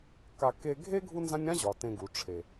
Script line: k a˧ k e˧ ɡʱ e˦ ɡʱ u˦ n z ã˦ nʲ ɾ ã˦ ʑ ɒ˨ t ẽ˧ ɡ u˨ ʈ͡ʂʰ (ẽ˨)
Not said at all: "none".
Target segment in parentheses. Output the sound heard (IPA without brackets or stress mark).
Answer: e˨